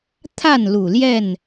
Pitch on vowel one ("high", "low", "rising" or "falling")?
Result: falling